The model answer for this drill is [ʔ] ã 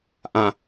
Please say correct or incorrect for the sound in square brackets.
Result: correct